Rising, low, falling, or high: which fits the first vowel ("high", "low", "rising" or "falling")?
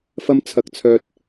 high